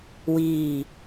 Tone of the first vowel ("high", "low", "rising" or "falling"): falling